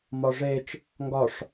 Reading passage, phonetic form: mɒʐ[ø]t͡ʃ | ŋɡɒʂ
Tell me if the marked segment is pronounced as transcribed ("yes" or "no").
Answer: no